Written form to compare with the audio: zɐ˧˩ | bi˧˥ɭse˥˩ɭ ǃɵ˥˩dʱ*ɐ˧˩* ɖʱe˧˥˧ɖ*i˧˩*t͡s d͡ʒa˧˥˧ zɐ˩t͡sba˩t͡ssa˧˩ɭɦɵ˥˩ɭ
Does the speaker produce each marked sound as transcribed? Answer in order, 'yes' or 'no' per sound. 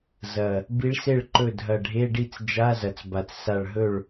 yes, no

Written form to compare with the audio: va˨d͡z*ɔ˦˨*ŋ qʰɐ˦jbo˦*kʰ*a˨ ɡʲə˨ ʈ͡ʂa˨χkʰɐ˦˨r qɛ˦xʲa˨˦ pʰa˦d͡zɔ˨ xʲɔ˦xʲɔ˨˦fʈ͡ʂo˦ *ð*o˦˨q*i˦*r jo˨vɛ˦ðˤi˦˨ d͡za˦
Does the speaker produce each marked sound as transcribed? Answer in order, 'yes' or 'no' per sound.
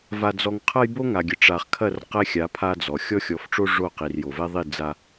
no, no, no, no

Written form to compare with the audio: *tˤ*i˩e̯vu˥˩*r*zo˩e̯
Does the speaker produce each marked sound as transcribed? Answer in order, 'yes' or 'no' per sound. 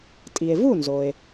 no, no

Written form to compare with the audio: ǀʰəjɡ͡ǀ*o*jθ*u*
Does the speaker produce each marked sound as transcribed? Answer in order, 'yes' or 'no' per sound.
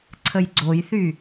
yes, no

